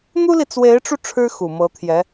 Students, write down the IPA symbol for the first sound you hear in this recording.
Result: n̪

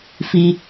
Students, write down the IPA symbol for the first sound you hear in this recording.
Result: f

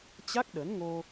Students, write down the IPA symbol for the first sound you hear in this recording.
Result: t͡ɕ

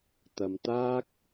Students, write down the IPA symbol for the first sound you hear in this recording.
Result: t̪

